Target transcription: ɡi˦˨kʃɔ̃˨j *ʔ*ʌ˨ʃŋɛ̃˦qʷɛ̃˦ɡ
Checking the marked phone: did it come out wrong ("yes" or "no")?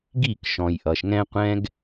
no